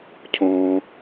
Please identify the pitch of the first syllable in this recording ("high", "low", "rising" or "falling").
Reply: low